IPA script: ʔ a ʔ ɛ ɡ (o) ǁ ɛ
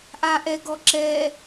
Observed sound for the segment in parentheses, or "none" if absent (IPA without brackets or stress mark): ɔ